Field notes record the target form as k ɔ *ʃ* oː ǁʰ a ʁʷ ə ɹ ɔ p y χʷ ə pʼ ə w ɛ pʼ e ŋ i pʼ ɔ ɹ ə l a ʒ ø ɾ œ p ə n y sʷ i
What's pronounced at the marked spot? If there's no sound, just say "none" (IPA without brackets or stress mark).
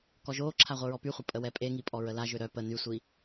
ʒ